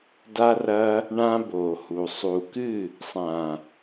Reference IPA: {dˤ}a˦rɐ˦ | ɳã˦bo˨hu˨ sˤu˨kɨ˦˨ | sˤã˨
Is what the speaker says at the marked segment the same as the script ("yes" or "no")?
no